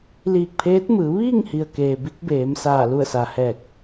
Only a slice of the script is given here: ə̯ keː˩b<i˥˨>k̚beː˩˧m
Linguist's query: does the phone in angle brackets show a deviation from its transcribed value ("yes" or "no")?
yes